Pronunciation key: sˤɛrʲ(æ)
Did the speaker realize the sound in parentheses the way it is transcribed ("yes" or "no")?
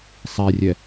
no